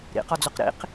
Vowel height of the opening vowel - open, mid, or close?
close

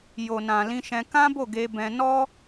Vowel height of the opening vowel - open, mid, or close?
mid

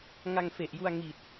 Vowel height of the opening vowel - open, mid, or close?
open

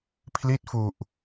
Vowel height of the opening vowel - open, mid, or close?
close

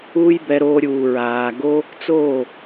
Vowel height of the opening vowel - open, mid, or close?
close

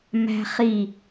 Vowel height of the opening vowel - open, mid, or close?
open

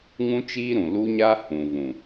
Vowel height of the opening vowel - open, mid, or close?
close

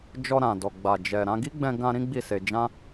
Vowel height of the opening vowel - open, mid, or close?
mid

